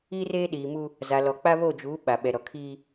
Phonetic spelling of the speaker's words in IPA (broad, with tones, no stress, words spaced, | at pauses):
i˦reː˦ɗiː˨ mu˦ | za˨lɔ˨k͡pa˦ βo˦˨d͡ʒuː˨˦ ɓa˨ɓɛ˨ɾɔ˨ kʰiː˦